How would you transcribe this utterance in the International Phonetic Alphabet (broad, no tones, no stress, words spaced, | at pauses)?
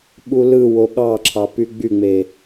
ɓulɯwo ɠɑǁʰɑ pyɡ͡byŋ͡me